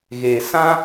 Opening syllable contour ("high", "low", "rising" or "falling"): low